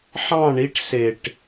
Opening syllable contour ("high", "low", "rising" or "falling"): falling